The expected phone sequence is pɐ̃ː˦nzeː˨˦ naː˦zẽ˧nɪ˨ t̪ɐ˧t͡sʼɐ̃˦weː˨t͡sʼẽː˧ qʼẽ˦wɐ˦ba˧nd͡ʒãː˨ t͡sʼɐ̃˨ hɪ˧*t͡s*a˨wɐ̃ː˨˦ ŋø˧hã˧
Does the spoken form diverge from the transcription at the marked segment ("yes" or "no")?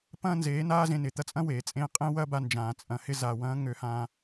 yes